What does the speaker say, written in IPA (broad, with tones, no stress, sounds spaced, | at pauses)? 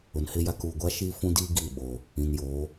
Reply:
ʊ˨ n h ɪ˦ j a˦ k uː˨ ɡʷ a˦ ʃ iː˦ f ũ˦ d iː˦ ɡ i˦˨ ɓ o˨ | ĩ˨ n j oː˨˦